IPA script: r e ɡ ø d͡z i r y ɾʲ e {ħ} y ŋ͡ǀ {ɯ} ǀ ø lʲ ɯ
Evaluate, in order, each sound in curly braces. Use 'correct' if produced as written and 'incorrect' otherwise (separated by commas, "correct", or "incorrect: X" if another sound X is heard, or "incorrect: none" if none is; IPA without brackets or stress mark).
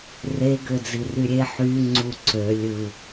correct, incorrect: u